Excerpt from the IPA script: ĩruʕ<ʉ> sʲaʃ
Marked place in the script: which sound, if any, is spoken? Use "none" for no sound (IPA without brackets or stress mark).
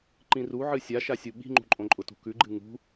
ɨ